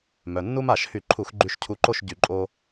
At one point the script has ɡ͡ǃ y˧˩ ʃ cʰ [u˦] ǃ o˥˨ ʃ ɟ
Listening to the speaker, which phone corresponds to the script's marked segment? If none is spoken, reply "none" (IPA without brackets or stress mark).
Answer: u˧˩